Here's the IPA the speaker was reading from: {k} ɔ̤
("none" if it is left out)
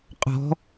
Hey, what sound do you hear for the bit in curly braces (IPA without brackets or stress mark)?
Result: qʼ